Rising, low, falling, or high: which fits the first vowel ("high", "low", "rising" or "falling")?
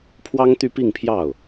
high